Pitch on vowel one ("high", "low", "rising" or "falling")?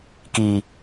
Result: low